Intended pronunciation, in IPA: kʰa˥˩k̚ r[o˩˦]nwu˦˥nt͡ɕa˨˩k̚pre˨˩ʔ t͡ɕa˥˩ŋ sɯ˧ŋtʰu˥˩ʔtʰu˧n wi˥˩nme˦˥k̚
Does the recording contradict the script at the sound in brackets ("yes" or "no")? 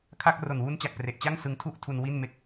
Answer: yes